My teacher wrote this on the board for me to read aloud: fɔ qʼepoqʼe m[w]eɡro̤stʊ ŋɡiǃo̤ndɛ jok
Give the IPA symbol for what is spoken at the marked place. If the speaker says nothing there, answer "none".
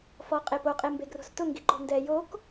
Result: b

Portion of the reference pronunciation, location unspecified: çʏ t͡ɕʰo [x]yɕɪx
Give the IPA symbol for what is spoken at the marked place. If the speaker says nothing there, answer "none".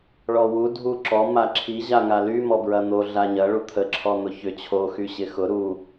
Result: x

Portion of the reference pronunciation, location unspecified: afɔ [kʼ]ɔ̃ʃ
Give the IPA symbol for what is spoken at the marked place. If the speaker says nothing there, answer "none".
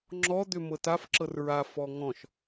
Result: ŋ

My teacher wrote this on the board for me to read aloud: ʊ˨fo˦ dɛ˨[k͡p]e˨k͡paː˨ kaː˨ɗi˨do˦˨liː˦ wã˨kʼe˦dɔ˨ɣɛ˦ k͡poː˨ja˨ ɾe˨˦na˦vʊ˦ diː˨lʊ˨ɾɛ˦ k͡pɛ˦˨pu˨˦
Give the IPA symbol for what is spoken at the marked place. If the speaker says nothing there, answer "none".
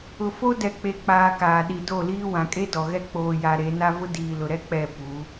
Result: k͡p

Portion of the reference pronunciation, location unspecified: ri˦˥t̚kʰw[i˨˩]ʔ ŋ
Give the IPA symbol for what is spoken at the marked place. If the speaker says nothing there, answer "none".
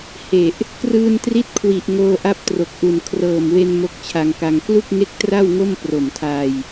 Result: i˨˩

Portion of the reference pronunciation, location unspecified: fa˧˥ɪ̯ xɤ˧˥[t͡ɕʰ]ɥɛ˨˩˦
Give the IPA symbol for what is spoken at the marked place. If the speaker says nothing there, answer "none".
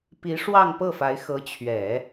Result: t͡ɕʰ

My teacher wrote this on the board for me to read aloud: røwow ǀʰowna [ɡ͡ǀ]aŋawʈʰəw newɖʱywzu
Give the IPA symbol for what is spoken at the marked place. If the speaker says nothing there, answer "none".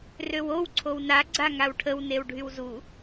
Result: ɡ͡ǀ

